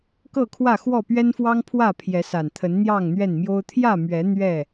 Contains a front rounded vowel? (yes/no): no